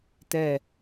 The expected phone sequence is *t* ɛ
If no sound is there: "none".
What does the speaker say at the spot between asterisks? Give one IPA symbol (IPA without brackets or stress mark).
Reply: t